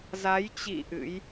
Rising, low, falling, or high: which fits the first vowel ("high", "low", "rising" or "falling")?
rising